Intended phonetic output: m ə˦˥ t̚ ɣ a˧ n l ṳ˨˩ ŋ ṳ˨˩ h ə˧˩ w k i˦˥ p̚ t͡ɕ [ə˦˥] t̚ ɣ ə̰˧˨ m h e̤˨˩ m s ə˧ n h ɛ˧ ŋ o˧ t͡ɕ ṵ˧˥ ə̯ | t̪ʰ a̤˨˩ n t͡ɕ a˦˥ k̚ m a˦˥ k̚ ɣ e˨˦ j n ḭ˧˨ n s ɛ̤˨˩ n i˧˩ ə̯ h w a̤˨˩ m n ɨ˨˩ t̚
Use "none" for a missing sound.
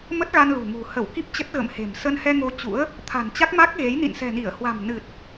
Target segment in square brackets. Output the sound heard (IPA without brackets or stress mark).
ə˦˥